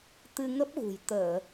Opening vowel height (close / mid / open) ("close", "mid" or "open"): close